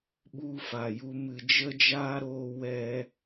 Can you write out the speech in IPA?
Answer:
ɓu˧fa˨ju˧ mɨ˨d͡ʒə˦d͡ʒaː˦ɾoː˧ wɛ˦

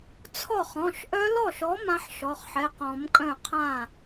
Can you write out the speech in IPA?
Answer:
t͡sʰɔ˥˩χ ɔ̃˩˧˩ʃʔœ˦˥lɔ˥˩ʃɔ˨˥ mã˦˥ħʃɔ˩˧˩χħɛ˩˧˩qɔ̃˨˩˦m kʼœ̃˥˩qʰã˥˩

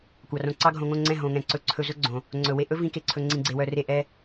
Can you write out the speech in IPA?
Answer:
kʷɑ˨rõ˧ ǀɑ˦ɡʱõ˧ŋõ˦˨ŋ͡ǀɛ̃˦˨ ɦõ˨ŋɛ̃˨ ǀɵ˧ǀʰɵ˧ zɵ˦ɡ͡ǀõ˨ | ŋ͡ǀɵ˨we˧ʔɵ˦ vĩ˦ke˧ǀʰɵ˧ ŋ͡ǀĩ˧ɡ͡ǀe˧wœ˧re˦˨ ʔɛ˦

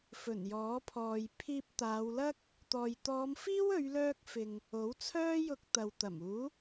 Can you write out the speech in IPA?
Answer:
fɵ˨˩njɔː˨˥pʰɔː˨j pʰiː˧p̚ t̪aː˨˧wlɐ˥k̚ | t̪ɔː˨jt̪ɔː˨˧mfiː˥w ɵ˨˧ɥlœː˧k̚ fɪ˨ŋ | o˨˥wt͡sʰœː˥jʊ˧k̚ t̪ɐ˨wt̪ɐ˨˩muː˨˥

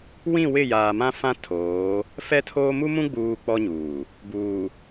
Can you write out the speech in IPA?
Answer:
wĩ˦˨wɪ˦˨ jaː˨mã˦fã˦ tʰoː˨˦ | fɛ˦tʰoː˦ mu˦mũ˦ɡ͡buː˨ k͡pɔ˦ɲuː˨ | buː˨

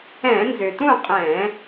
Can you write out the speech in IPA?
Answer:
ɛ̃˧˩˧nzʏ˩tũ˥˨ qʼɛ̃˧˩˧

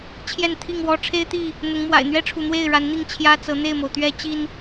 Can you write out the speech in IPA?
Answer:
t͡ɕʰjɛ˥˨nt̪ʰi˥˨ŋwɔ˦ ʈ͡ʂʰe˦ɪ̯t̪i˥˨ | n̪ʊ˨˦ŋmwa̰˨˩ɪ̯ n̪ɥɛ˦ʈ͡ʂʰu˨n̪we˥˨ɪ̯ ɻa˨˦nn̪i˥˨ŋ t͡ɕʰjä˦t͡sɤ˨˦ n̪e˥˨ɪ̯mo˩ʊ̯t̪ɥɛ˦ t͡ɕi˦n

